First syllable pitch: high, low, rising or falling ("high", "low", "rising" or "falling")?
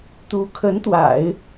rising